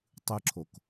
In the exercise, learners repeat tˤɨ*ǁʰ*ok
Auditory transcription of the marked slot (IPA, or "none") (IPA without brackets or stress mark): ǁʰ